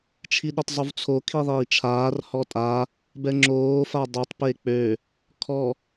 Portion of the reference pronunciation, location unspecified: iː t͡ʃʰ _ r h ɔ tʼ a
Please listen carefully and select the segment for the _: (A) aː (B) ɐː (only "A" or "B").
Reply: A